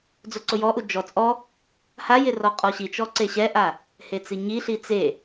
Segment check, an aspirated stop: absent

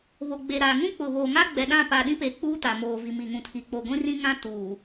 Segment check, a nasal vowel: present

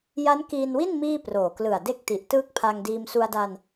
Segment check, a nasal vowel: absent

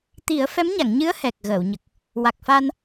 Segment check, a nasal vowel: absent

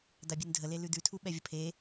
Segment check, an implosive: present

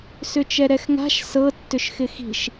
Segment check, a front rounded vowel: present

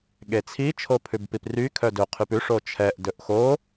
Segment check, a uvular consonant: present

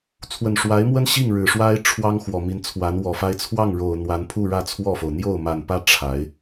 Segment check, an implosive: absent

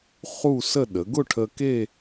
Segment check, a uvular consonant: present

